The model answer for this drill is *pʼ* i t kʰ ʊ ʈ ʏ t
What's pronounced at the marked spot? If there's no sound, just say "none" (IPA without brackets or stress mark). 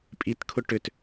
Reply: pʼ